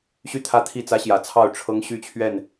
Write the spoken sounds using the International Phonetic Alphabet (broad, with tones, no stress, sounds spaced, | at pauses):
ɕ y˥˨ t̪ʰ ä˥˨ t̪ʰ i˥˨ t͡s ä˦ ɕ j ä˨˩ t͡sʰ ɑ˥˨ ʊ̯ ʈ͡ʂʰ ɤ˦ ŋ ɕ y˥˨ t͡ɕʰ ɥ ɛ˥˨ n